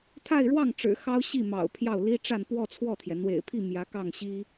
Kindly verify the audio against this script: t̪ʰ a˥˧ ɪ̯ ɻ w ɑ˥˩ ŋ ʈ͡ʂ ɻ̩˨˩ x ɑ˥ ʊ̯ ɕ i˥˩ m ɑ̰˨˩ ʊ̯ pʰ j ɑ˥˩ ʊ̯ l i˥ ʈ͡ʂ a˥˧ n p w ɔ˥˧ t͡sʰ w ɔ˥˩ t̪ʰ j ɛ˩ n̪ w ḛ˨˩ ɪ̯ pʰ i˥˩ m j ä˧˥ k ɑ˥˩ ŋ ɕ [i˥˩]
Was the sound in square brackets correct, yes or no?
no